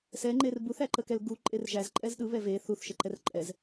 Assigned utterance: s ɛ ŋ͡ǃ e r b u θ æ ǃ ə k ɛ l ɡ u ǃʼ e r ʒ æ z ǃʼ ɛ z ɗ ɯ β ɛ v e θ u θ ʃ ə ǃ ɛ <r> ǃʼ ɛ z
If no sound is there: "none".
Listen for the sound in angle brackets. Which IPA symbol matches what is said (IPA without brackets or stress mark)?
r